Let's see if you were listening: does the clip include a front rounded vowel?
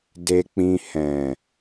no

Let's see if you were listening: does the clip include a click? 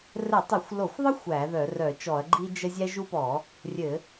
yes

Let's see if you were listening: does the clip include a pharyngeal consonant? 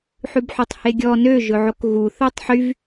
yes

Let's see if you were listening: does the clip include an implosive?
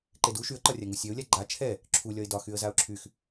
no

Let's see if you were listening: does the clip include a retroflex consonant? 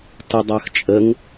no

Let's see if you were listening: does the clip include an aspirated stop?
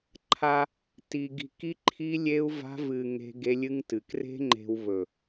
yes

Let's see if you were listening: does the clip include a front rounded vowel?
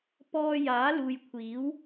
no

